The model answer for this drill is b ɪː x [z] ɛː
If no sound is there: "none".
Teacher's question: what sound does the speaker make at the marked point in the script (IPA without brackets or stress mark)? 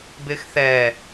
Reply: θ